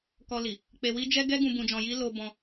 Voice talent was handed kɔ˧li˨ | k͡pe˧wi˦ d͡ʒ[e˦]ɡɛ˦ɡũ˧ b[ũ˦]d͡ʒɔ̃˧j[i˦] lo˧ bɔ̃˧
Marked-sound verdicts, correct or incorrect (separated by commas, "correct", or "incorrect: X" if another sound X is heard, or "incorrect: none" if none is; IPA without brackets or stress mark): incorrect: ɛ˦, incorrect: ũ˧, correct